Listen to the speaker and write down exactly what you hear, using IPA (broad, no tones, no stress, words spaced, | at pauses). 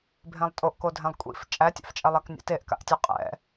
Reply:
bʱẽlˠtʼoʔko dʱẽlˠkʷʼḭf t͡ʃʼætʲa̰ft͡ʃʼɛlˠæk nʲa̰teʔka̰ʔtʲɛ qʼɛ̰